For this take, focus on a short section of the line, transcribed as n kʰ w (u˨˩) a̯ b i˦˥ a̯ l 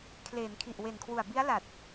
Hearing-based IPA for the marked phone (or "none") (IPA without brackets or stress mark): u˨˩